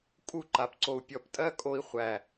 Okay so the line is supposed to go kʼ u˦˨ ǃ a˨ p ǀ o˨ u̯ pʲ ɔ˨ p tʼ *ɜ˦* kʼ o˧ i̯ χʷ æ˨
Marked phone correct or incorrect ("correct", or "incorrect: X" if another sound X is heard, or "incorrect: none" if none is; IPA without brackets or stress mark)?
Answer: correct